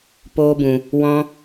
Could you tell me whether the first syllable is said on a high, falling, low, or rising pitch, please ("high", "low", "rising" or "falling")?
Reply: high